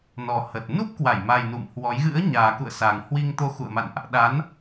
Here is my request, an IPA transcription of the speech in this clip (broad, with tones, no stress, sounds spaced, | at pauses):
n ɔ˨˩ h ə˨˩ t̚ n u˦˥ p̚ k w a˧˩ j m a˨˩ j n ṵ˧˨ m h w ɔ˨˦ j ɣ ɨ̰˧˥ ə̯ ɲ aː˨˩ k ṵ˧˨ ə̯ s a˨˩ ŋ h w i˧ ŋ t̪ o˧ x ṵ˧˨ ə̯ m a̰˧˨ n ʔ | ɗ a˨˦ n